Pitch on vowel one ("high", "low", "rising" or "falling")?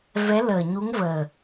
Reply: rising